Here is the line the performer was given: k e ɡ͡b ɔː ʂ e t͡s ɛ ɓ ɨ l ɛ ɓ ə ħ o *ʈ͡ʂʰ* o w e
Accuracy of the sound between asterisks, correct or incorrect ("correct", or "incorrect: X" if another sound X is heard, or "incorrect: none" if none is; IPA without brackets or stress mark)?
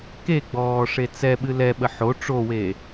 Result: incorrect: ʈ͡ʂ